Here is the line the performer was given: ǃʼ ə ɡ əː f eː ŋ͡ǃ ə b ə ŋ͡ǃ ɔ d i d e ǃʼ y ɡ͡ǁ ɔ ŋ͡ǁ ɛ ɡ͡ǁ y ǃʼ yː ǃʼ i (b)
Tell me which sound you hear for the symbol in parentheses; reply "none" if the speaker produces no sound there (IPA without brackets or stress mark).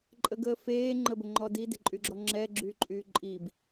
b